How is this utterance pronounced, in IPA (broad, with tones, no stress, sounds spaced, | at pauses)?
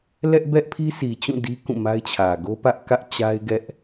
l ɛ˦ ʔ b ɛ˦ ʔ pʰ i˦ sʰ i˨ t͡ɕ ũ˦˨ d i˦ k ũ˦˨ m a˦ ɪ̯ t͡ɕʰ ä˨ ɡ o˦ p ä˦ ʔ k ä˦ ʔ t͡ɕ a˦ ɪ̯ ɡ ɛ˦ ʔ